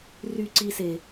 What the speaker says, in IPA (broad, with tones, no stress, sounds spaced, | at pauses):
r y˦ ǀ i˧ s e˨